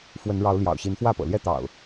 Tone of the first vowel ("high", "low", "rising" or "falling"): rising